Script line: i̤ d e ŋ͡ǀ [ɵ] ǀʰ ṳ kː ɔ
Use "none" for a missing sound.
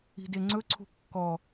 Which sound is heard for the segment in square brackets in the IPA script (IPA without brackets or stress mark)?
ɵ